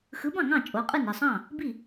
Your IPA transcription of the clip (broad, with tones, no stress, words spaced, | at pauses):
xɯ˨˥bɑ̃˥˩ŋɑ̃˥˩ t͡ʃʼo˨˥qʼɯ˥˩n i˥˩sˤɑ̃˥˩ | bi˥˩